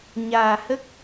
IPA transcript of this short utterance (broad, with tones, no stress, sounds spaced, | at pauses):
ɲ aː˨˩ h ə˦˥ k̚